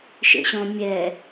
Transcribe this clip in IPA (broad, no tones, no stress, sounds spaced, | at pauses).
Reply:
ʃ ḛ ɕ ɔ̃ mʲ ɛ